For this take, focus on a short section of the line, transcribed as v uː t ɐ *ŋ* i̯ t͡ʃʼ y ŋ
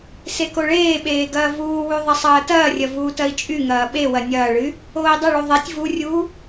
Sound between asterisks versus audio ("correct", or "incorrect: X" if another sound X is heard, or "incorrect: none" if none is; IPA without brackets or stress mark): incorrect: none